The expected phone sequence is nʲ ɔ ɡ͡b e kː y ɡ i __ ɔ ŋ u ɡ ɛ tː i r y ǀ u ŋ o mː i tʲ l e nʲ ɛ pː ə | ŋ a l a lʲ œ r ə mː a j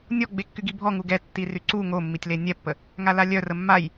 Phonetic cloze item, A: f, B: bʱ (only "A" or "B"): B